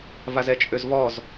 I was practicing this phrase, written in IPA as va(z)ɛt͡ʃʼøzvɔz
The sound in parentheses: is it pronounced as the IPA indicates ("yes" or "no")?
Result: yes